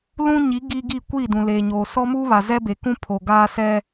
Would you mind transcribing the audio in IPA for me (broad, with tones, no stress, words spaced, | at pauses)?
lũ˦ɲi˨˦ ɡi˦ɡi˦˨ kʷiː˦˨dũ˨ leː˨ɲoː˨ sɔ˦mu˦ βa˨zɛ˦be˨kũ˦ pʰo˨ɡaː˦sɛ˦